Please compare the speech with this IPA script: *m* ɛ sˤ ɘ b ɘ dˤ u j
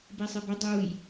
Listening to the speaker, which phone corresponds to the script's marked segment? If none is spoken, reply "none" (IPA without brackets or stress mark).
b